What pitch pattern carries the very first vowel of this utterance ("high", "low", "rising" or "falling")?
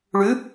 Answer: rising